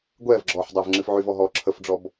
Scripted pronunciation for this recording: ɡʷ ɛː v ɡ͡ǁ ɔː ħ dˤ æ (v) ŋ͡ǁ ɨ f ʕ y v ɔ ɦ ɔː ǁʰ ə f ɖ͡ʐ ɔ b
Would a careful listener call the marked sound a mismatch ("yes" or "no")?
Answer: no